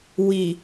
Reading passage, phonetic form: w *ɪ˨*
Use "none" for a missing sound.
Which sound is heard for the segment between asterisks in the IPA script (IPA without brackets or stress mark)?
i˨